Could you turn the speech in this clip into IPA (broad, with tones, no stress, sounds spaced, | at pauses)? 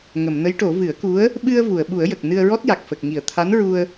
ŋ ə˨˩˨ m n ə˧˥ j ʈ o˨˩˦ v ɨ˨˩˦ ə̯ k u˧˥ ə̯ | ɓ ɨ˧ ə̯ v u˨˩˨ ə̯ ɓ u˨˩˦ ə̯ j ə˨˩ k̚ n ɨ˧ ə̯ ɹ ɔ˦˥ t̚ j a˨˩ k̚ f ə˨˩ k̚ ŋ i˨˩˨ ə̯ t̪ʰ a˧˥ n ɹ u˧ ə̯